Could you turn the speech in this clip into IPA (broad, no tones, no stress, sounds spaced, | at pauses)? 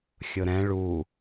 xʲ ʊ ɾ ɛ̃ ɭ u